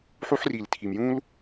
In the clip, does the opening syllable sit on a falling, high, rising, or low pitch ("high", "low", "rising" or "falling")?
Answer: high